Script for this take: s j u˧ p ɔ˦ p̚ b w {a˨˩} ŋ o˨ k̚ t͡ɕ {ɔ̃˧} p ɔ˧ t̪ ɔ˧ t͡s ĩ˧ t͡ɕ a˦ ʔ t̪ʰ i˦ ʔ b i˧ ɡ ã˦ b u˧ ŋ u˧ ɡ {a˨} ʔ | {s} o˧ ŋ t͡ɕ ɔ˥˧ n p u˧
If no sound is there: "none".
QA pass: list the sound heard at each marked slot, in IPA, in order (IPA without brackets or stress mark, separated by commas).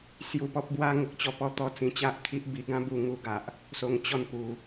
a˦, ɔ˧, a˨, s